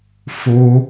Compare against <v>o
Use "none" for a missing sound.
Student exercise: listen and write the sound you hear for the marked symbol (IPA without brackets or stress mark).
f